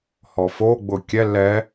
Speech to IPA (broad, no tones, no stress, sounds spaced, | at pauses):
h ɔ f o ɡ͡b ʊ kʲ ɛ l ɛ